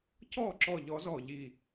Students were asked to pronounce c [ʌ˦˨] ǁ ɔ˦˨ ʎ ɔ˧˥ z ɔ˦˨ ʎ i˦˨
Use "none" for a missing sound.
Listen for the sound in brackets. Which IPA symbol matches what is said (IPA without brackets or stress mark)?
ɔ˦˨